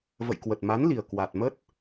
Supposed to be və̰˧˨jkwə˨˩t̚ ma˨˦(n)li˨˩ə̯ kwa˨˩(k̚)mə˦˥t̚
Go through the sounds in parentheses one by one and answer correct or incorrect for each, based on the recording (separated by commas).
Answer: correct, incorrect